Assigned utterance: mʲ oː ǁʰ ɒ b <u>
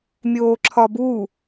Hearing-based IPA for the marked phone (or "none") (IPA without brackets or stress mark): u